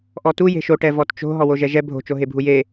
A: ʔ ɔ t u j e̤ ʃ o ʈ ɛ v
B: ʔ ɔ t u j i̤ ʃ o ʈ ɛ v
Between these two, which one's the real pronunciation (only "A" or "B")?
A